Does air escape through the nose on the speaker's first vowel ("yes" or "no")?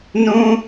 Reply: yes